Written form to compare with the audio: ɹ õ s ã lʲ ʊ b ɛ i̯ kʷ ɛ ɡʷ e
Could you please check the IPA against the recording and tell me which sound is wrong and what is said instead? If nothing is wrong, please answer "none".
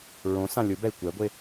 none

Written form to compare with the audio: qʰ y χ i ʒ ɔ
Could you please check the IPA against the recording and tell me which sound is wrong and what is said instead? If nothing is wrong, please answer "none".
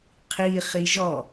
y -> i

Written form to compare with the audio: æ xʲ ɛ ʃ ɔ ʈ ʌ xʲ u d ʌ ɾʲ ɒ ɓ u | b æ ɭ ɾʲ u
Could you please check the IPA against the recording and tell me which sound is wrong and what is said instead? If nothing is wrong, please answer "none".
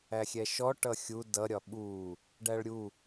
b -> ɖ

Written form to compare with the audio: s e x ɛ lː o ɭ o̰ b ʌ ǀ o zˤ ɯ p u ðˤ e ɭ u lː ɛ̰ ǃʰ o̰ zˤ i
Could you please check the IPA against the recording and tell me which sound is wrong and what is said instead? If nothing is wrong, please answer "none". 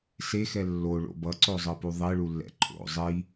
none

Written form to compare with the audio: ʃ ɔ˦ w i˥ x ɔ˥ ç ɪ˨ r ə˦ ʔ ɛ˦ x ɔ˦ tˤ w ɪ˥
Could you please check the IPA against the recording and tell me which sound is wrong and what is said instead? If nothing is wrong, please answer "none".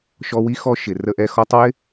ç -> ʃ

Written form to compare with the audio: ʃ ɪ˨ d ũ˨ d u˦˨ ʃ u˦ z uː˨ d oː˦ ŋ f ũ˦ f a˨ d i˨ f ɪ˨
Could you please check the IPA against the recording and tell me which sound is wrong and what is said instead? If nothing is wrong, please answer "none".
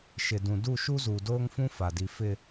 none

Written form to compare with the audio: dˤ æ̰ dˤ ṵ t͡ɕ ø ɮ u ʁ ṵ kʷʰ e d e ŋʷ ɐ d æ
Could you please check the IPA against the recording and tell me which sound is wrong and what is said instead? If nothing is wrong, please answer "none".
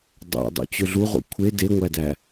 ɐ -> æ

